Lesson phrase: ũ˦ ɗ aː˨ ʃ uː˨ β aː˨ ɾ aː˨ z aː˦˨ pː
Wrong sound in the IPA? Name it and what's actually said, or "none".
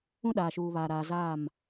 pː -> m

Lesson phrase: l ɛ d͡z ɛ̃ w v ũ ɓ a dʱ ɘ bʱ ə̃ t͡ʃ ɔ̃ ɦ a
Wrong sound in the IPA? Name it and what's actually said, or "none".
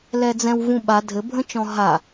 none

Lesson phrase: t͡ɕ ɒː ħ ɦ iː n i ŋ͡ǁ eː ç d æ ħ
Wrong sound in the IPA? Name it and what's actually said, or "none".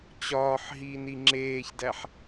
none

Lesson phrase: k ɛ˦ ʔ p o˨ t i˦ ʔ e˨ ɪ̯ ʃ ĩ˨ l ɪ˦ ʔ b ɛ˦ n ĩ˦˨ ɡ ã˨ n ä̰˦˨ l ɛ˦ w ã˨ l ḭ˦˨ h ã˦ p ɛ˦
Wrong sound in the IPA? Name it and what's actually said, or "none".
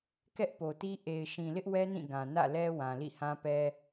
b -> w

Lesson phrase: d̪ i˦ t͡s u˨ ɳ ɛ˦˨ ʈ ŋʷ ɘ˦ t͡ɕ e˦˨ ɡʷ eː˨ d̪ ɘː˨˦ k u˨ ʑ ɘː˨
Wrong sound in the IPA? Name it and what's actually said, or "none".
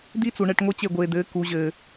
none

